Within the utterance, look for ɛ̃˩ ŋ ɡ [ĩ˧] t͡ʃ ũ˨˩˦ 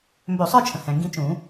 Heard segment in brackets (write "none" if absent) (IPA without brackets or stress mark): ĩ˧